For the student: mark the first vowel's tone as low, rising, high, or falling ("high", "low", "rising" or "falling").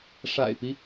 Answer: low